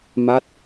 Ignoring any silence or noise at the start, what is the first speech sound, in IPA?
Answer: m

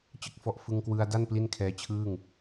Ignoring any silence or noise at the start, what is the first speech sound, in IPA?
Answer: t͡ɕ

